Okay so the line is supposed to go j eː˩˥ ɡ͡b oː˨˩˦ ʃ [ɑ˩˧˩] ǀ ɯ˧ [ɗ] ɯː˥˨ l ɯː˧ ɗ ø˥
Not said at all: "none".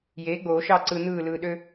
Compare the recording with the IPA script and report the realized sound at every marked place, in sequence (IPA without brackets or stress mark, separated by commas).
ɑ˥˨, n̪